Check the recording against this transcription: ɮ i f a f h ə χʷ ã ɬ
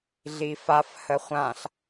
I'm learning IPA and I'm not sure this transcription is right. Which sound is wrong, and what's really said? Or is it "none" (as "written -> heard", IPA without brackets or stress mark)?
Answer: none